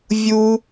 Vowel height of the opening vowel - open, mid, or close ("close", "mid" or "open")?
close